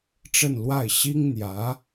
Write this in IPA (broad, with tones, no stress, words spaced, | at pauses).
ʈ͡ʂə˥˧nlwa˥˩ɪ̯ ɕi˥ŋn̪jä˧˥